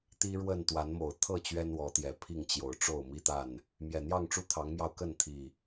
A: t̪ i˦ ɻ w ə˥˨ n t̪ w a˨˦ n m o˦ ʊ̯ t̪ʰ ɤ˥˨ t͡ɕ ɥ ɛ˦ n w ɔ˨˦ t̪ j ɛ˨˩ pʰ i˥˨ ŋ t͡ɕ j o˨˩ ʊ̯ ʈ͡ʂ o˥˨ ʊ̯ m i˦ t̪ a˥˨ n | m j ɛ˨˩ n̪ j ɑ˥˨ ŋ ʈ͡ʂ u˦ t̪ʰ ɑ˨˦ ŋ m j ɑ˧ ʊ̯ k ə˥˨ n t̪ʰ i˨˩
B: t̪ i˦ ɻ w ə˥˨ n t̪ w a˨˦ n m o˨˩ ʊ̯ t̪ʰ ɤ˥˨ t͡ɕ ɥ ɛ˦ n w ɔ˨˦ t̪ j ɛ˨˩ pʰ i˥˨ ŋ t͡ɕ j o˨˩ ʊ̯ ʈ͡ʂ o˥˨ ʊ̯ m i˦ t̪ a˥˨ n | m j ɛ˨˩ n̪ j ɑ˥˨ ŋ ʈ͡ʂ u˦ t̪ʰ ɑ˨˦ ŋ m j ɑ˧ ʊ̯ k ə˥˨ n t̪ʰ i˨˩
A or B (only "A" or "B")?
B